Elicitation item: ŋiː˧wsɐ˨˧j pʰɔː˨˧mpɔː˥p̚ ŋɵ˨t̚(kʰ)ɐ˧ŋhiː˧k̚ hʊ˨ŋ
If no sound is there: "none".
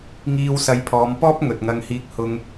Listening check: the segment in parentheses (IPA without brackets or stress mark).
ŋ